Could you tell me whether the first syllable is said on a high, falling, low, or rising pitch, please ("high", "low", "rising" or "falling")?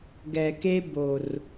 low